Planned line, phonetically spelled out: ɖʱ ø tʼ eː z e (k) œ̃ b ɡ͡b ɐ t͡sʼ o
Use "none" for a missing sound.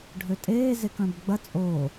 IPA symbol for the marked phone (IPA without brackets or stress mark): k